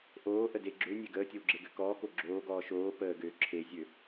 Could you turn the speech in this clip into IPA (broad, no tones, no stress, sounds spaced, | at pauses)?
ʔ oː ʔ ə d e ɡ͡ǁ ø nʲ e ɡ əː tʲ ə w ɡ͡ǁ e ɡ ø k ɔː k o ɡ͡ǁ oː ɡ ɔː ʃ oː p əː ɡ øː ǁʰ e zʲ ø